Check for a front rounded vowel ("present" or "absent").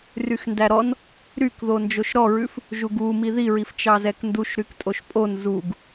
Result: present